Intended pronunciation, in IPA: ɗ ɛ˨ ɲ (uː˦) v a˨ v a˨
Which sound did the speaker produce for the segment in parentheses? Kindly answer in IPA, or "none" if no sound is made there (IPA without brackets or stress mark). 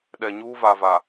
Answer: uː˦